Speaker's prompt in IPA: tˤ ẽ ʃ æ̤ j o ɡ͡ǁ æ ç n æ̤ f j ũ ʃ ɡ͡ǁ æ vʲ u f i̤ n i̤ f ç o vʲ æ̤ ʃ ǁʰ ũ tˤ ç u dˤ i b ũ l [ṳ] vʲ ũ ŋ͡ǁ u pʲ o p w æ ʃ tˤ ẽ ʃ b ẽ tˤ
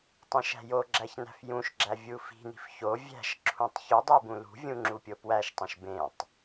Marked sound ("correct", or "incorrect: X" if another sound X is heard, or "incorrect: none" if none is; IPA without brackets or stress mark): correct